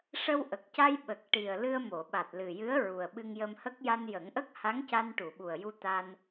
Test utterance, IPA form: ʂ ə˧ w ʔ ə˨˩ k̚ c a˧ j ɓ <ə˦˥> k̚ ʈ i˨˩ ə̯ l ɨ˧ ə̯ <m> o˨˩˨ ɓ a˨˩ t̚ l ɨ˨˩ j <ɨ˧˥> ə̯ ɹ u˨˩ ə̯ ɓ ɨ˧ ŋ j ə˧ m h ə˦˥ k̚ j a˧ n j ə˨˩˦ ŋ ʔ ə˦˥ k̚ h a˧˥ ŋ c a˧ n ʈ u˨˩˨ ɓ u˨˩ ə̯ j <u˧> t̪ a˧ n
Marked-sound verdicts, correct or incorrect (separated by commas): incorrect, correct, correct, correct